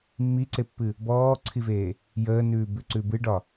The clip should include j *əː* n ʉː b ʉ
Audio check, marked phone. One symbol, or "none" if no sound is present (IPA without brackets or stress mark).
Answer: əː